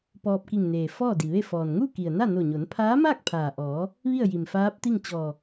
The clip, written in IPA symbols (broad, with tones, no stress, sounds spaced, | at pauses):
p ɔː˧ p̚ k i˧˩ ŋ n eː˩ f ɔː˥˨ d i˩ ʋ e˥˨ f ɔː˩ n ŋ u˥˨ k i˩ ə̯ n a˥˨ n o˧˩ ɲ o˩˧ n pʰ aː˧˥ m aː˥˨ k̚ pʰ aː˩ ʔ ɔː˩˧ | ʋ i˥˨ ə̯ j i˩ m f aː˧˥ p̚ t̪ i˥˨ ŋ t͡ɕ ɔː˧˩